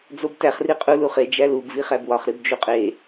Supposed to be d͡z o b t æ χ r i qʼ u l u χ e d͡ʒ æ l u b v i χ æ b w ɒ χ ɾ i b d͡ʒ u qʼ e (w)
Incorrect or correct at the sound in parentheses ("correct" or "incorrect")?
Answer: incorrect